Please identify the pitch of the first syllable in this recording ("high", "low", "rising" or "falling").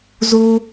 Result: high